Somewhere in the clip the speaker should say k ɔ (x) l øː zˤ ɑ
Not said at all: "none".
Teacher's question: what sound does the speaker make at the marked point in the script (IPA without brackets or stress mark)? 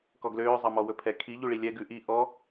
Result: ɡ